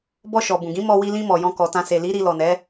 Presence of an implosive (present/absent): absent